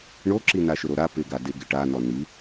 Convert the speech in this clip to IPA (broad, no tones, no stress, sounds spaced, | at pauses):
ɳ o ǁ i n a ʃ ʊ ɾ o ɾ a p ɪ ɡ a d ɪ ɡ ɪ ʈ a n ɔ n i